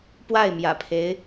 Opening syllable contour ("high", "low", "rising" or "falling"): falling